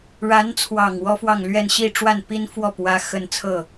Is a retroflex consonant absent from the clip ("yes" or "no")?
no